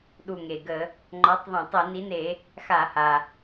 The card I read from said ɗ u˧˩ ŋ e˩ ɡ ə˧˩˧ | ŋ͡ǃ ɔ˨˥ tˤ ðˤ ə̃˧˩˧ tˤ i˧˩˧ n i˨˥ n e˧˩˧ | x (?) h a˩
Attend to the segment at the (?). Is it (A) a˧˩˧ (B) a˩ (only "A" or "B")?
A